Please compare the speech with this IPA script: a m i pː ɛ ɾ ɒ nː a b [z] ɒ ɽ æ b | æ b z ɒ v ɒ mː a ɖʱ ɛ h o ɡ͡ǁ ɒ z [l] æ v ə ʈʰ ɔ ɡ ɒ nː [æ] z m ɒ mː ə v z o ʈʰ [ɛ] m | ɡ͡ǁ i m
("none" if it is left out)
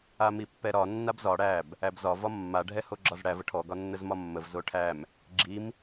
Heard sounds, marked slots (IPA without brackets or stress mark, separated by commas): z, ɽ, ə, æ